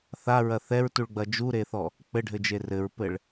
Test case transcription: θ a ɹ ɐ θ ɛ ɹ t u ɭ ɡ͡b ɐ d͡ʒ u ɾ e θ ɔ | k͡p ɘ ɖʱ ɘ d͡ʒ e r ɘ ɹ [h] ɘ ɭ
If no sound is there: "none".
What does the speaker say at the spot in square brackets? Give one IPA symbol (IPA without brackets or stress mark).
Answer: p